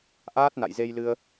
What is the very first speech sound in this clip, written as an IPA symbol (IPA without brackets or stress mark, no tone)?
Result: ʔ